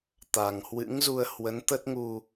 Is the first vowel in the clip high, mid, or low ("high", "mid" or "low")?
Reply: low